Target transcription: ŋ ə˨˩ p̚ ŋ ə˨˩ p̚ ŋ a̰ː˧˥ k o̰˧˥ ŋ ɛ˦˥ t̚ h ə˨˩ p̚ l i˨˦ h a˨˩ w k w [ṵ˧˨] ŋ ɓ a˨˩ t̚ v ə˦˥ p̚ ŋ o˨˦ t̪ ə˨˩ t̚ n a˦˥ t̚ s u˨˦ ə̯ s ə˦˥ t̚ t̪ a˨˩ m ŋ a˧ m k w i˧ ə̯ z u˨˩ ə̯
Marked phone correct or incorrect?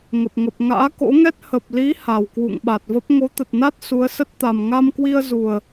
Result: correct